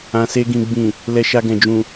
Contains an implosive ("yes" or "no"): no